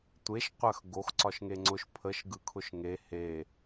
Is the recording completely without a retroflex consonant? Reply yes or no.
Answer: yes